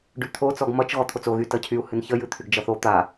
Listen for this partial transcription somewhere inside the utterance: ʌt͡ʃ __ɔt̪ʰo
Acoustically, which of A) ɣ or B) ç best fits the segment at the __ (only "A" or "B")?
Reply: A